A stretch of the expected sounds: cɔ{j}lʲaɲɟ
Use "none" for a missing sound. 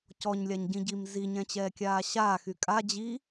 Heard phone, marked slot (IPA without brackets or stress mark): ɲ